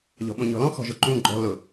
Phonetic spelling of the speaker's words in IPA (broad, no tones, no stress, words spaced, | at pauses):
ʎɔ̤ɓõɲɔ̤lɔ̃ xɔ̤ʒʊǃũ ɡ͡ǃɔ̤ lʊ